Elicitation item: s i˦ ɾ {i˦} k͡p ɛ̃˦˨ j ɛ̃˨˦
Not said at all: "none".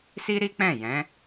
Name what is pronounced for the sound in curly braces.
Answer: i˦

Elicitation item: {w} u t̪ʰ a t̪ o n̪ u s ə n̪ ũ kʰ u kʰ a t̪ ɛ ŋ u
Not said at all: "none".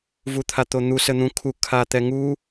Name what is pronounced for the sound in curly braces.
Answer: v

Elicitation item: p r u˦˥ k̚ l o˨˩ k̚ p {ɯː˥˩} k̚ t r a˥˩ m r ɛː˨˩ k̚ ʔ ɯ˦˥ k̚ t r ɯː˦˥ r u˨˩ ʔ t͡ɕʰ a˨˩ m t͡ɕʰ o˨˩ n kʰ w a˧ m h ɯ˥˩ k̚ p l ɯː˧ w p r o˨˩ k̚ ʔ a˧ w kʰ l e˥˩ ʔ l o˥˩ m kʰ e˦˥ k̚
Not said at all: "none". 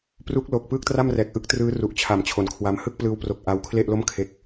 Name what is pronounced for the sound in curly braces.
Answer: ɯː˥˩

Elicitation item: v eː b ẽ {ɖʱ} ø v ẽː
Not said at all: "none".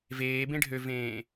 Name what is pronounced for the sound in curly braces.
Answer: ɖʱ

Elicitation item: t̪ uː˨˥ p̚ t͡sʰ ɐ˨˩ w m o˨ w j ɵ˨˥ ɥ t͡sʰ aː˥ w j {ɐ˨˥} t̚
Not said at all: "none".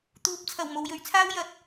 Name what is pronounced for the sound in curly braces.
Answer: ɐ˨˥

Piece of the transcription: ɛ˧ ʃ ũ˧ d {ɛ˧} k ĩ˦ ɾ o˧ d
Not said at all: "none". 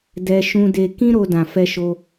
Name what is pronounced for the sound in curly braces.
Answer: e˧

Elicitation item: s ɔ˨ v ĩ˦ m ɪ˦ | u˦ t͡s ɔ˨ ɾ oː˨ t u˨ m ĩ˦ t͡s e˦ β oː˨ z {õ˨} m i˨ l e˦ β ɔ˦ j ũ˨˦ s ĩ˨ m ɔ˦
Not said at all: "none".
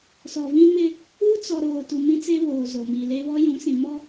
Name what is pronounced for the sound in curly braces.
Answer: o˨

